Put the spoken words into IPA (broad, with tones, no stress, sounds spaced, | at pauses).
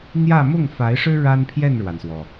n̪ j ä˥˧ m ʊ˥˩ ŋ f a˧˥ ɪ̯ ʂ ɻ̩˥ ɻ a˥ n pʰ j ɛ˥˩ n ɻ w a˩ n s w ɔ˩